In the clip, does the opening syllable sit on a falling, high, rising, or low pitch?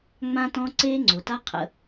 high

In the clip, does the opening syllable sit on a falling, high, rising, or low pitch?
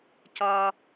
high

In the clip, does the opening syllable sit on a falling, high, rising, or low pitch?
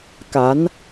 rising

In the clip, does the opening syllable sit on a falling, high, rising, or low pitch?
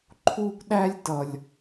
high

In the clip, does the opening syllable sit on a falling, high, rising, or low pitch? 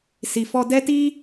low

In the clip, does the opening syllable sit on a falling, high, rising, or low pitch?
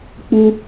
high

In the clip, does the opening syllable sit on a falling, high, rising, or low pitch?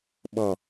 low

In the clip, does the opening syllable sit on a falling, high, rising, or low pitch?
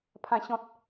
low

